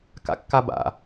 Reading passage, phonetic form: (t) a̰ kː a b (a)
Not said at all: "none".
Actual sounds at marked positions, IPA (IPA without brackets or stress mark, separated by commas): k, a̰